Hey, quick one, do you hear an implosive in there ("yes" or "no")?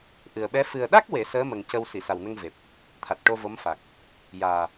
yes